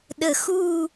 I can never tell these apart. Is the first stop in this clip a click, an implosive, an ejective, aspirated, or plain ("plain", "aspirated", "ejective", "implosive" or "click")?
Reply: implosive